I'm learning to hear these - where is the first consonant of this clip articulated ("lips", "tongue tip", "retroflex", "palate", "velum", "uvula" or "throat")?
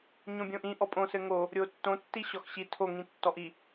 palate